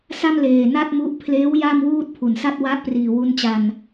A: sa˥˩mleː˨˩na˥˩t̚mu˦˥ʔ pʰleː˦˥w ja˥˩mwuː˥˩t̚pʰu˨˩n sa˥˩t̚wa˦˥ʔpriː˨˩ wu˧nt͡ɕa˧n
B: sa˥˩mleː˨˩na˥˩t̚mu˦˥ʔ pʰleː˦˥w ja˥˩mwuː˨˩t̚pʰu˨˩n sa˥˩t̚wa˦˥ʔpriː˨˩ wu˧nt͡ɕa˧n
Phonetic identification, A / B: A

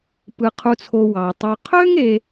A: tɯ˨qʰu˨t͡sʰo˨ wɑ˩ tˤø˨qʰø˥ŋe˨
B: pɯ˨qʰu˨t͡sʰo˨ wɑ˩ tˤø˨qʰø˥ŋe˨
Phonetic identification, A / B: B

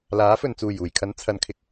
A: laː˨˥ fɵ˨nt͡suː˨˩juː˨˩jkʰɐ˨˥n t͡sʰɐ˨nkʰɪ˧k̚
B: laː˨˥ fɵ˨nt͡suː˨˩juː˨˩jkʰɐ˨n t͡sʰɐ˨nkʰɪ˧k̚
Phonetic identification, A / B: A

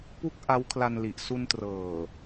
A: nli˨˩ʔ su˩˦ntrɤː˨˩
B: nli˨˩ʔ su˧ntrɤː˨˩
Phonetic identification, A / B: B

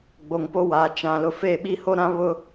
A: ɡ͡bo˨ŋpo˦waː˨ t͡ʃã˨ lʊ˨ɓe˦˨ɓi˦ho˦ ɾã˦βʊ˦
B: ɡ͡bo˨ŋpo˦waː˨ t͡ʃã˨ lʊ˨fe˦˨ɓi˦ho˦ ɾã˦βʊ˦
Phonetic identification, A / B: B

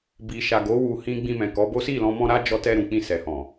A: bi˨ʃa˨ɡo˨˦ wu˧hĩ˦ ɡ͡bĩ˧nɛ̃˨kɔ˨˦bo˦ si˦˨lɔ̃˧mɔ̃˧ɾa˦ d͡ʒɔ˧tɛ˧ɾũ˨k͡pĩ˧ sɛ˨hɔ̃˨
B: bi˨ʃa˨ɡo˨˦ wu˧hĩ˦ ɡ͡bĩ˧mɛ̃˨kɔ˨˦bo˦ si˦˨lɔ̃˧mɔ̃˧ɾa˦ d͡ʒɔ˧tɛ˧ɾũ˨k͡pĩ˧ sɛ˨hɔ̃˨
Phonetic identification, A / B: B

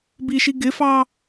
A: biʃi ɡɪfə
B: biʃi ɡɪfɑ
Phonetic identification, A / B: B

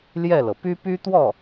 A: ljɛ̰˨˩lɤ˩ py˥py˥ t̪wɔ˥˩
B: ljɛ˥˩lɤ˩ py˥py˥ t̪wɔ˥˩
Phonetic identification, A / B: B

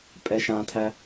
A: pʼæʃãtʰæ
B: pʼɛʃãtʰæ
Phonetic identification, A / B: B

